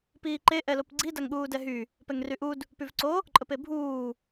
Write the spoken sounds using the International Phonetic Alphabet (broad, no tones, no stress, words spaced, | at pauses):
piːǃe ʔɛlopɡ͡ǀi daŋɠuːdɛɦy | pɛŋryʔud | pyvǀo | ǃʼəpebʱuː